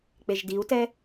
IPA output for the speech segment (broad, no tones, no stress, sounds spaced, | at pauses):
k͡p e ʒ d i u̯ t ɛ